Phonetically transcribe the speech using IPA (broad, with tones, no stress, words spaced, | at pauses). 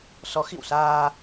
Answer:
sɔ˨˦xḭ˧˨wsaː˧